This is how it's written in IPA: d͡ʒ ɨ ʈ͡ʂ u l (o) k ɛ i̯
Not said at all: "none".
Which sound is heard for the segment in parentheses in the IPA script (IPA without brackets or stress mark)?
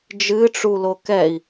o